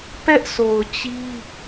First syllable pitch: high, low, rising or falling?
high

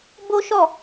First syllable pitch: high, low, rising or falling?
high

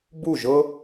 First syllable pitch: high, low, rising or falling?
falling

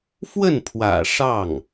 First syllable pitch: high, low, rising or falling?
falling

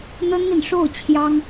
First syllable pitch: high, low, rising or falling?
high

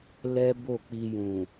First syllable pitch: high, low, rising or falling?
high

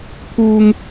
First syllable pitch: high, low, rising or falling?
high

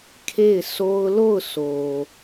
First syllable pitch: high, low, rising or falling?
falling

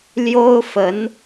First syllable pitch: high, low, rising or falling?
high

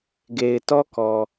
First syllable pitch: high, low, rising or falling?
low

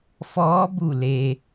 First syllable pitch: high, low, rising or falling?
rising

